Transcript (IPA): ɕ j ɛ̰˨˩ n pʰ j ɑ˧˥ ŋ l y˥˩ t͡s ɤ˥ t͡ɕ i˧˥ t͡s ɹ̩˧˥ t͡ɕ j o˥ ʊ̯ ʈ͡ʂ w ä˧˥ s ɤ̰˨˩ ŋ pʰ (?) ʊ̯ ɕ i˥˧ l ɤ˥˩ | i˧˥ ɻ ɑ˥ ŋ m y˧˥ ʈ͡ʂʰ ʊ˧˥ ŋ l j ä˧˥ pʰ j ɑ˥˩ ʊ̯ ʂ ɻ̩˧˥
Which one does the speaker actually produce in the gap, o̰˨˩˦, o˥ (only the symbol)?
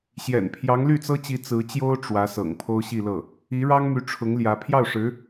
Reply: o˥